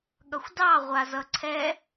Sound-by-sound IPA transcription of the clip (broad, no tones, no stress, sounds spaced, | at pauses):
ɠ ʌ xʷ d ɑ ʁʷ a z ʌ ǀʰ ɛ